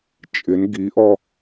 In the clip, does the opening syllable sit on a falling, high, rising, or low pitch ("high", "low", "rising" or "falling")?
rising